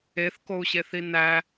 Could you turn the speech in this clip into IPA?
e θ k o u̯ ɕ e θ i n æ

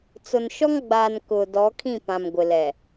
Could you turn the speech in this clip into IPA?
t͡s ʊ˨ n ʃ ɔ˦ ŋ ɡ͡b aː˨ n k ʊ˨ d ɔ˨˦ kʰ ĩ˦˨ p ã˨ m ɡʷ ɪ˨ l ɛ˨

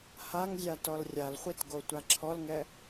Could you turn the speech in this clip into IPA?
h a ŋ zʲ a t ɔ l rʲ a l χʷ i t ɡ o tʷ a ǁʰ ɔ l ŋ ɛ

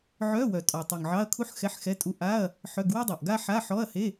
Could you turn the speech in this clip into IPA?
ʕ œ˧˥˧ w œ˨˩ tʼ ɔ˨˩ tˤ y˨˩ ŋ ʕ ɑ˧˥˧ ɐ̯ kʰ u˥ ħ x ɛ˧˥˧ ħ x ɛ˧˥˧ tʼ u˧˥˧ ʔ a˧˥˧ ɐ̯ | ħ œ˧˥˧ ɡ w œ˥ dˤ ɑ˨˩ ʔ ɡ a˥ ħ a˧˥˧ ħ ɔ˧˥˧ ɐ̯ h e˧˥˧

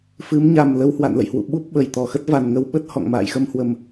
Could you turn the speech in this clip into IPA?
f ɨ˨˦ m ɲ a˨˩ m l ə˧ w h w a̰˧˨ n l ə̰˧˨ j h w ṵ˧˨ ɓ u˦˥ p̚ ɓ ə˧˩ j t̪ ɔ˧˩ x ə˦˥ t̚ v a˨˩ n ŋ ə˧ w ɓ ə˦˥ t̚ h ɔ̰˧˨ ŋ m a̰ː˧˨ j x ə˧ m h w ə˨˩ m

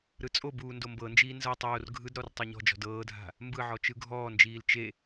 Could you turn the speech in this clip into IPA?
ɾ ɯ t͡sʼ o b uː n d o m b ɤ n d͡ʒ iː n z ɤ tˤ oː r ɡʱ ɯ d ɾ ɔ r tˤ o ɲ ɔ̤ d͡ʒ ɔ̤ d ɤː dʱ a̤ | m b ɯ ʕ ɔ t͡ʃ ɯ ɡʱ ɔː n d͡ʒ iː l t͡ʃ e

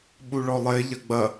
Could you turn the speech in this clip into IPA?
ɓ u ɭ ɔ lˠ e ʎ ɐ ɡ͡b ɐ

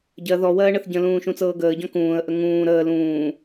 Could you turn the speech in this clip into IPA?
ɟ ɜ ð ɔ w ɜː ɳ ə θ ɟ ə̃ l ũː ʃ ũ t͡s ɤː ɡ əː ɟ ɔ̃ k ũː ə̯ ʔ ə ŋ ũː ɾ əː l ũː

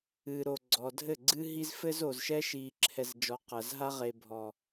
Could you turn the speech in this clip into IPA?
ɨ˨ ɾ o˨ ɡ͡ǀ ɔ˨ dʱ ɘ˦˨ ɡ͡ǀ ɨ˦ ɦ i˦ z f ɘ˦ z o˨ z ʃ ɛ˦ ʃ i˨ ǁʰ ɛ˨ z d͡ʒ ɔ˨ q ɐ˨ z ɦ a˦ ʁ e˨ bʱ ɔ˨

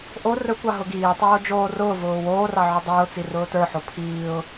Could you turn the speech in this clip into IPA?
ʔ o r ɵ kʷ ɑ ɦ ʊ ɡ iː tˤ oː d͡ʒ oː r ʊː v ʊː w oː r ɑ ʕ ʊ dˤ ʊː t͡s i r ʊː t ə˞ ħ o pʰ iː ʊ̯

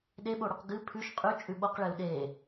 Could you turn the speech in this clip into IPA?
ɗ e ɓ o ɽ ʉ q ɡ ɨ pʰ ʉ ʃ qʼ ʉ t͡ʃʼ ʉ ɓ o q ɭ e u̯ ɗ e

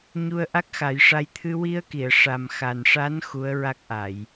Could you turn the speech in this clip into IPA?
ɲ u˧ ə̯ ʔ a˦˥ k̚ x a˨˩˦ j ʂ a˧ j t̪ʰ ɨ˧ w i˧ ə̯ k i˨˩˨ ə̯ ʂ a˨˩ m x a˨˩ n ʂ a˧˥ n x u˧˥ ə̯ ɹ a˦˥ k̚ ʔ a˨˩˨ j

